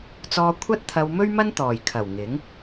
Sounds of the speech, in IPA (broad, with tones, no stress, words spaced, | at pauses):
t͡sɔː˧ kʷʰɐ˥t̚t̪ʰɐ˧w mɵ˥ɥmɐ˥n t̪ɔː˨˩j kʰɐ˨˩w ŋɪ˨˥ŋ